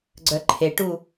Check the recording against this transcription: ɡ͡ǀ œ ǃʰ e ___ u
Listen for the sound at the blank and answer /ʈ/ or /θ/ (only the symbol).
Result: ʈ